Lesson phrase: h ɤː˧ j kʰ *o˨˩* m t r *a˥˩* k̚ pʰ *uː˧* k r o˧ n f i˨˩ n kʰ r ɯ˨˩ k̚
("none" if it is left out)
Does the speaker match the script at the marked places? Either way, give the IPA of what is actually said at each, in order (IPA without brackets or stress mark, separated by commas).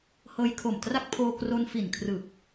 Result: o˨˩, a˥˩, oː˧